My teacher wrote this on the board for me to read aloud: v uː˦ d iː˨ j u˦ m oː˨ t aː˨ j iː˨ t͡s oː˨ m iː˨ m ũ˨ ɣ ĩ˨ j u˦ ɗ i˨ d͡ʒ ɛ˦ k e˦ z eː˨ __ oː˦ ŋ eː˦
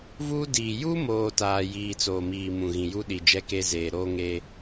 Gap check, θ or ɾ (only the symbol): ɾ